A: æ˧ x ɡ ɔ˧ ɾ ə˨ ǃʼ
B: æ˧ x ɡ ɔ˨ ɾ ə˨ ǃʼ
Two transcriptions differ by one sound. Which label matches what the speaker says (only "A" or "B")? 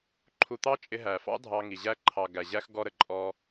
A